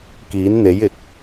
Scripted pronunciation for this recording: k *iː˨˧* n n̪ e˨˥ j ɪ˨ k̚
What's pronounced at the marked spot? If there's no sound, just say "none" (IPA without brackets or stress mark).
iː˨˥